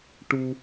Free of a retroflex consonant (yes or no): no